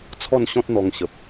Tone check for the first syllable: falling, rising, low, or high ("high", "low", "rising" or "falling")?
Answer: falling